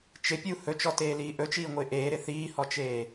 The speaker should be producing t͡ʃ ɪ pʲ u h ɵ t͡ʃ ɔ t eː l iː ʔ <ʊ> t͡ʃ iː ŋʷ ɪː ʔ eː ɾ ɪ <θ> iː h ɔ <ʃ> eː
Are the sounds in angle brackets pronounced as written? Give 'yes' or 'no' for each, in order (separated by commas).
no, yes, no